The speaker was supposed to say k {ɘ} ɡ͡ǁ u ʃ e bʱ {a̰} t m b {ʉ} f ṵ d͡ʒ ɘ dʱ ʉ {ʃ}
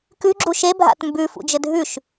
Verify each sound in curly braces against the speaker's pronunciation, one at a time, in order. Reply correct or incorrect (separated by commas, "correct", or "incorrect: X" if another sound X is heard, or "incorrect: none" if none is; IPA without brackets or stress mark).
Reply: incorrect: ʉ, correct, correct, correct